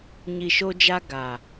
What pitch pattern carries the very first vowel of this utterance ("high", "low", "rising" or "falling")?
low